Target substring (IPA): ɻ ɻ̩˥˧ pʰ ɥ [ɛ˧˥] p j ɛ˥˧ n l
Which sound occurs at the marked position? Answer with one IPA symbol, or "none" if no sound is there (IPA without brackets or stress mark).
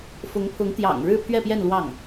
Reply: ɛ˥˧